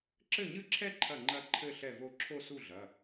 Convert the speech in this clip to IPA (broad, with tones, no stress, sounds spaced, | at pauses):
ǁ ɘ˥˩ ɲ ɨ˥˧ ǁʰ ɛ˥˧ ǃʰ ɐ˥˩ ŋ͡ǃ ɐ˥˧ ǃʰ ɘ˥˧ ɬ ɛ˥˩ v o˥˩ ǁʰ o˥˧ s u˥˩ ɮ ɐ˩˧˩